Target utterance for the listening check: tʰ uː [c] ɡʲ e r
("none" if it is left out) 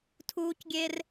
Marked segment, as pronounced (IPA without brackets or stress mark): c